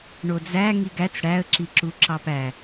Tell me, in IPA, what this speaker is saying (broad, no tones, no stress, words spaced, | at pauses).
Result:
ɳod͡zæ ŋiɡæt͡s ɽæə̯ ǁiǁuǁɑpæ